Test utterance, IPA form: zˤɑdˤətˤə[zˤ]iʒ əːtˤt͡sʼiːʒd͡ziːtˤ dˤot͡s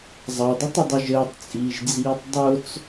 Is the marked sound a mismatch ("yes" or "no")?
yes